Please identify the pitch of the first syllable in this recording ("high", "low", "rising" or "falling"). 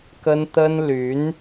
high